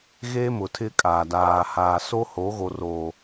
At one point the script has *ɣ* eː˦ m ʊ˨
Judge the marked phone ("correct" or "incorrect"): correct